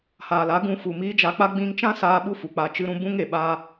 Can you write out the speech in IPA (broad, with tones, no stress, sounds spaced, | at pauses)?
h aː˨ l a˨˦ ɡ ũ˧ f u˨ m iː˧ d͡ʒ a˧ k͡p a˦ ɡ͡b ĩ˧ ŋ t͡ʃ ã˦ s aː˧ ɓ u˦ f u˨ k͡p a˧ t͡ʃ ɨ˧ ɾ ũ˧ b ũ˦ ŋ e˨ ɓ a˦